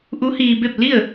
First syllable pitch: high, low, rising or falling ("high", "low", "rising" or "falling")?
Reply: rising